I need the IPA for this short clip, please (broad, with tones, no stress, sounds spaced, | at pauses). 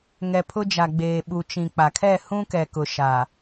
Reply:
ŋ ɛ˨ pʰ ʊ˦ d͡ʒ a˨ ɡ͡b eː˨ ɓ u˨ t͡ʃ ĩ˨ k͡p a˨ kʰ ɛ˦˨ h ũ˦ k ɛ˨ k ʊ˨ ʃ a˨